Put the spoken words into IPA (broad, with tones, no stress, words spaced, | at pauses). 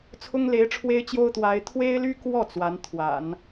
t͡sʰʊ˥ŋle˧˥ɪ̯ʈ͡ʂʰwe˥ɪ̯t͡ɕjo˥ʊ̯ t̪wa˧˥ɪ̯ t̪ʰwe˥ɪ̯ly˥ kwɔ˥˩ t͡swa˧˥nt̪ʰwa̰˨˩˦n